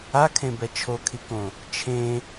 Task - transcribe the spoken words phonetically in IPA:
a kʰ ẽ b ɛ t͡ʃʰ o kʰ i k õ | t͡ʃʰ ẽ

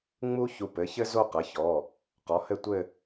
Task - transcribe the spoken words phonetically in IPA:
ŋ͡m u˥ ç u˧ p ɘ˩˥ ç ɘ˥ z o˥˧ q ɐ˩˥ ç ɔ˩˧˩ | q ɔ˩˥ h ɘ˥˧ tʷ ɘ˥˧

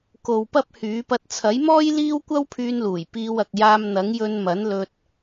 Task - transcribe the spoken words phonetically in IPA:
k o˨ w p ɐ˥ p̚ h yː˨˥ p ɐ˧ t̚ t͡sʰ ɐ˨˥ j m ɔː˥ j l iː˥ w kʷ ɐ˥ w pʰ yː˧ n l uː˨˩ j p iː˧ w ɐ˨ k̚ j aː˧ m n̪ ɐ˨˥ ŋ j ɵ˧ n m ɐ˨˥ n l ɵ˧ t̚

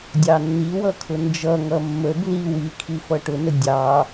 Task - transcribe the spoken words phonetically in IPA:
dʲ ɑ nː i w ʌ kʰ ʊ n d͡ʒ ʌ ŋ ʌ mː ə b l i w i kʰ i f ʌ ʈ ʊ n ə dʲ ɑ

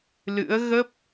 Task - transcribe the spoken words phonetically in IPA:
l ɨ̰˧˥ ə̯ ɣ ə˦˥ p̚

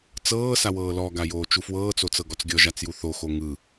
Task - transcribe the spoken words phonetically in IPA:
t͡s ɤː s a w ɤː l ɔ ɡ a j oː t͡ʃ u f w ɤː t͡s o t͡s ɤ ɡ ɔ t͡s ɡʲ ɔ ʒ a t͡s j u θ o x o ŋ ɯ

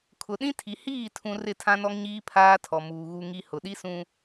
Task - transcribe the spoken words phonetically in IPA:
kʰ ʊ˨ ɗ ĩ˦ tʰ i˨ h iː˦˨ tʰ ũ˨ r ɪ˦˨ tʰ ã˦ n ɔ˦ ŋ ɲ iː˦ pʰ aː˦ tʰ ɔ˨ m uː˨ ɣ u˨ ŋ i˨ h ʊ˨ ɗ i˦ s ũ˦

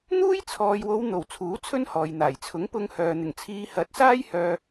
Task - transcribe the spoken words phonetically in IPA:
n̪ uː˥ j t͡sʰ ɔː˨ j w o˨˧ w n̪ o˨˩ w t͡sʰ uː˨˥ t͡sʰ ɵ˥ n h ɔː˨ j n̪ aː˨˩ j t͡sʰ ʊ˨˥ ŋ p ʊ˧ ŋ h œː˨ n̪ ɪ˨˩ ŋ t͡sʰ iː˨˧ h ɐ˨˥ t̚ s aː˥ j h œː˧

